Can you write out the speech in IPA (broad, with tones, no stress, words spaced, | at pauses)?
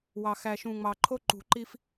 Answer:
wɑ˨ xæ˨ʃũ˨ ŋ͡mɑ˨ǃʰo˦ ǃṳ˨ǃi˦f